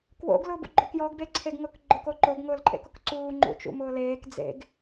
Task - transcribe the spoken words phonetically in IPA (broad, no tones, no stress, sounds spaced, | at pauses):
k w o̰ ɡ l ʊː b ṵ ɡ͡ǃ o k j ɔ ɡ b e ǀʰ e ɡ ŋ ʊ k ɡ͡ǃ ʊ k o ǃ o ɡ ŋ ʊː l ǃʼ ḛ k ʊ k ǀ uː ŋ͡ǃ ṵ t͡ʃ ṵ m ʊː l eː k d͡z ḛ ɡ